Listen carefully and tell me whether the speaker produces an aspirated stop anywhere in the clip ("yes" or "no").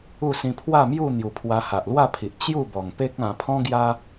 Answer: yes